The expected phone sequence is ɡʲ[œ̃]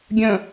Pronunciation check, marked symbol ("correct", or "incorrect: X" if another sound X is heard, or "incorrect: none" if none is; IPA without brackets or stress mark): correct